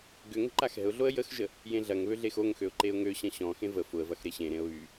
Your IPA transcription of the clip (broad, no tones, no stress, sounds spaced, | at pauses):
ɡ ʏ ŋ ə̤ ǃ a x ɛ̤ ʊ̯ ɮ o ə̯ j ə x ʒ ə | j ẽ ɮ ɐ ŋ β ø ɮ e x o ŋ x ø ʊ̯ ǃ e ʊ̯ ŋ ø ɕ ɐ̃ ɕ ɔ̃ x ẽ v ə f ʊ ə̯ v ɐ x ɾ e ɕ ẽ ɾ ẽ ə̯ β y